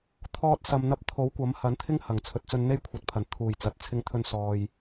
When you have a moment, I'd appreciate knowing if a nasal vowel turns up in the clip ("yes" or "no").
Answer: no